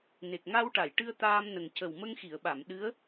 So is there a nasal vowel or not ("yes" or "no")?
no